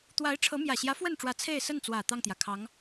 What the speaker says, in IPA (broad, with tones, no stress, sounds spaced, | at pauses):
t̪ w a˧˥ ɪ̯ ʈ͡ʂʰ ɤ˧˥ m j ä˨˩ ɕ j ä˧˥ f w ə˥˩ n ʈ͡ʂ w ä˧˥ t͡sʰ e˥˧ ɪ̯ s ə˥˩ n t͡s w ä˨˩ t̪ ɑ˥˩ ŋ t̪ j ä˩ kʰ ɑ˧˥ ŋ